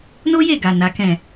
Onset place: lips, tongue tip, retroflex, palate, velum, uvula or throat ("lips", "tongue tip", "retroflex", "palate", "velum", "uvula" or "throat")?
tongue tip